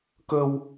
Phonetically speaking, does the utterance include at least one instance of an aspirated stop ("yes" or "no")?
no